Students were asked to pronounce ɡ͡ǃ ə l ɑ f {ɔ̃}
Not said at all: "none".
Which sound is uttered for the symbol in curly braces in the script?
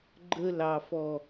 ɔ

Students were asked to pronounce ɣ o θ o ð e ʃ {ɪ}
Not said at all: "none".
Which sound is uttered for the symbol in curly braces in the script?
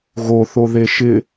ɪ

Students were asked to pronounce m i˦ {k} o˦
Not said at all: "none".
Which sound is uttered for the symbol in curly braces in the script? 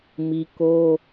k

